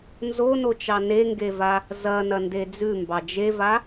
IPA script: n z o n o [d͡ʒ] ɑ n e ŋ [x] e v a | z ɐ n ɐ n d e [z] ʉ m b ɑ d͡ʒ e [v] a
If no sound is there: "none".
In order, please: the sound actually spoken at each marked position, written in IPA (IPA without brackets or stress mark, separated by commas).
t͡ʃ, ɡ, d͡z, v